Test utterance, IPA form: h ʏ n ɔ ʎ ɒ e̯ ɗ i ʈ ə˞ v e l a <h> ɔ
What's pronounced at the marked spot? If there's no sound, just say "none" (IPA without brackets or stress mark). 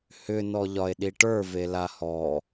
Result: h